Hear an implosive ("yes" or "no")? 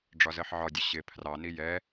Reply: no